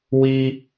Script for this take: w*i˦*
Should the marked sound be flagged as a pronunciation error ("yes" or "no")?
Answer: no